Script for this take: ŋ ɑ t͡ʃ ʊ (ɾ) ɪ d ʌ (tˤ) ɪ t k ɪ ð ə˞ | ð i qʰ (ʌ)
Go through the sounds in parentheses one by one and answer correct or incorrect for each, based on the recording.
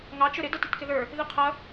correct, incorrect: t, correct

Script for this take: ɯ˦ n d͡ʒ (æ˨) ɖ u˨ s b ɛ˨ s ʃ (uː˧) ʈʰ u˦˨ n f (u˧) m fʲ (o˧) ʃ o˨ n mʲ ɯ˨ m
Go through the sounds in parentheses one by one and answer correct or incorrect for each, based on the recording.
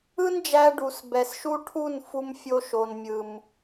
incorrect: æ˧, incorrect: u˧, correct, correct

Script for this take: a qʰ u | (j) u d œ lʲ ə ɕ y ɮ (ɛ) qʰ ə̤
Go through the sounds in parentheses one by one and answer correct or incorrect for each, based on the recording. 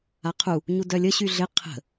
incorrect: ɲ, incorrect: ɪ

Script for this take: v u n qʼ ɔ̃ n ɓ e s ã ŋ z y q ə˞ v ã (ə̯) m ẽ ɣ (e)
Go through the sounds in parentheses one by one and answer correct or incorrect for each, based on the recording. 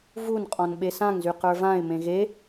incorrect: ɪ̯, correct

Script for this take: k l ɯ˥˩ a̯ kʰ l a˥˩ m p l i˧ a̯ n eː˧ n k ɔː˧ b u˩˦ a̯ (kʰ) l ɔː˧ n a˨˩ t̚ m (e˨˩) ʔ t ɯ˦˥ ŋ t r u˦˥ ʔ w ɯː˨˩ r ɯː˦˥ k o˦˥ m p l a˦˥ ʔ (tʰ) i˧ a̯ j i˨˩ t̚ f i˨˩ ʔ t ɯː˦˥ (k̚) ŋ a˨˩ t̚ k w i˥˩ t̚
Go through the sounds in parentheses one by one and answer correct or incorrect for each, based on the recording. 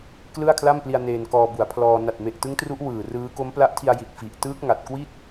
incorrect: pʰ, correct, correct, correct

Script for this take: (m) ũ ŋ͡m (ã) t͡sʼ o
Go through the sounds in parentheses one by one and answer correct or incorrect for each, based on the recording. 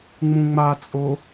incorrect: ŋ͡m, incorrect: a

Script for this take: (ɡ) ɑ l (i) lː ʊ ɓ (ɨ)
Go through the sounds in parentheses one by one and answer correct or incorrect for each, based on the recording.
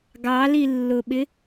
correct, correct, incorrect: ɪ

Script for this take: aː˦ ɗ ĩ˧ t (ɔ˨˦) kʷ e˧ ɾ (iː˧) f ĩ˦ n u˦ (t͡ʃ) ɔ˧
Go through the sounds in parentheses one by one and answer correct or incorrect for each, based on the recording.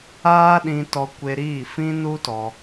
incorrect: ɔ˧, incorrect: iː˦˨, incorrect: t

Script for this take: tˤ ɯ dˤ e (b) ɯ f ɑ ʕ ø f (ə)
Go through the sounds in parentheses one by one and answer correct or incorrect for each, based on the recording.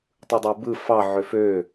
correct, incorrect: ø

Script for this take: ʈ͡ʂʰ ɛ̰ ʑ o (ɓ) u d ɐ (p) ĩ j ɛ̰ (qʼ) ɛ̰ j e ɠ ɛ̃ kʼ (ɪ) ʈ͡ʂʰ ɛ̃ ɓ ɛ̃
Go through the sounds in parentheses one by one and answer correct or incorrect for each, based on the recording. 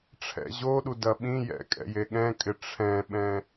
incorrect: ɗ, incorrect: ɓ, incorrect: kʼ, correct

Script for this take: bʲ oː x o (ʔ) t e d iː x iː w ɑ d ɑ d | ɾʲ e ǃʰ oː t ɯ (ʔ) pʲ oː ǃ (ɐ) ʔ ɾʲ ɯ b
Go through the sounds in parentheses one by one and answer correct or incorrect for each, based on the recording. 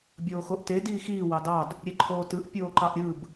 correct, correct, incorrect: ɑ

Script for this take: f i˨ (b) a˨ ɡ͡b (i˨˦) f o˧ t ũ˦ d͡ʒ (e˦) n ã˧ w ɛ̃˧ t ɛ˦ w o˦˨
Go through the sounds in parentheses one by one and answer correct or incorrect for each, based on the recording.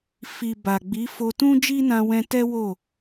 correct, correct, incorrect: i˦

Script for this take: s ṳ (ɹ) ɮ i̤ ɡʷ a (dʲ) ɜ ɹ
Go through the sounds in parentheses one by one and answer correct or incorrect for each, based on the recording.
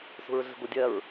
correct, correct

